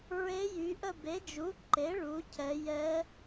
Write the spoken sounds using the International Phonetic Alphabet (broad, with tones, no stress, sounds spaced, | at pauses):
ɹ e˧˥ j y˩˧ ʔ ə˦˨ b e˩˥ d͡ʒ u˩˥ ǃ e˩˥ ɭ u˩˧ cʰ ɛ˩˧ j ɛ˧˥